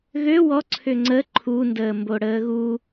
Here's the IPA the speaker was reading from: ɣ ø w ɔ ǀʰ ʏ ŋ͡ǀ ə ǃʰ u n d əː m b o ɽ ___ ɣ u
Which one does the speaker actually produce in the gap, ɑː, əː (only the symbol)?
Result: əː